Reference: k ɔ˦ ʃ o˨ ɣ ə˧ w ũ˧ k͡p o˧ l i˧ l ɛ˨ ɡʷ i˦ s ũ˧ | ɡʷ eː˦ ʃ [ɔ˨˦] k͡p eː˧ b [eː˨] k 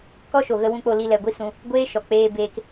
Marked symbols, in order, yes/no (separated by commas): no, no